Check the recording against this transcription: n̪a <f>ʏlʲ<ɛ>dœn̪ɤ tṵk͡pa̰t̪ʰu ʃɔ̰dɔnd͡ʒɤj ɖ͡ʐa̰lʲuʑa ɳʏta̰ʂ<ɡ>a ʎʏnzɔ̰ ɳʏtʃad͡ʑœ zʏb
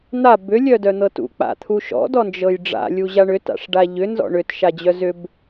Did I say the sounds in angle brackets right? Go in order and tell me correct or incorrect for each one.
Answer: incorrect, incorrect, incorrect

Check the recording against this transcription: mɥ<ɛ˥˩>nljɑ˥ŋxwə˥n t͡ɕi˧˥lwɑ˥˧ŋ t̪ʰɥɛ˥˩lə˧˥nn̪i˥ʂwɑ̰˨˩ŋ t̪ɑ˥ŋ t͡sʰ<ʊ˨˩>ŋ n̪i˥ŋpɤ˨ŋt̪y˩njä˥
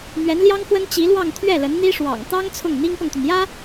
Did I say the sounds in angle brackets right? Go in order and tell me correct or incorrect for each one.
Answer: incorrect, incorrect

